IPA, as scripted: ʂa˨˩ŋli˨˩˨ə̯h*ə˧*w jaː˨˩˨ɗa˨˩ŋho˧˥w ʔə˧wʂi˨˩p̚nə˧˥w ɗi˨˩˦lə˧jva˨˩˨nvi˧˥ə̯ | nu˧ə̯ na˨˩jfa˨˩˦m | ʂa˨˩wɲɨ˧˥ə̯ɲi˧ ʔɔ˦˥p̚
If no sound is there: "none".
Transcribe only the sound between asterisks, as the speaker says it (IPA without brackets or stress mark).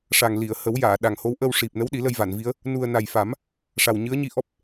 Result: ə˨˩˦